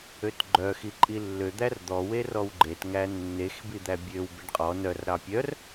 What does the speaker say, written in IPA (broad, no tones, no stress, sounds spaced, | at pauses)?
ø t ɡ͡ǃ œ x i ǃʼ i lː ø d̪ æ r d̪ ɔ w e r ɔ w ɡ͡ǃ e t ŋ æ nː e x b i d̪ æ bʲ ø w b e ɖ qʼ ɔ n œ r ɾ ɑ pʲ œ r